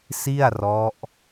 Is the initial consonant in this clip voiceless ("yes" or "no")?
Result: yes